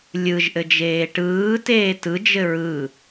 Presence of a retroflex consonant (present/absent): present